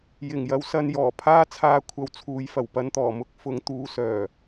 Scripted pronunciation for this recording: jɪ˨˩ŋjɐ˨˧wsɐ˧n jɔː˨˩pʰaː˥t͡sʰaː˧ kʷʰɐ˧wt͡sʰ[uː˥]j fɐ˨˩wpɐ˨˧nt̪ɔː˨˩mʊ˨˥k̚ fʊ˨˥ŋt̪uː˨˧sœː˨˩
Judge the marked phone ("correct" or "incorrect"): incorrect